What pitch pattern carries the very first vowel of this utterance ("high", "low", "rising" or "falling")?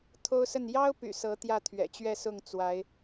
high